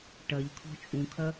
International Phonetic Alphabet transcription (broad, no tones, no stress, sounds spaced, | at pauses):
ʈ ɐ ʎ kʰ ɔ̤ t͡ʃʼ ũ kʰ ɐ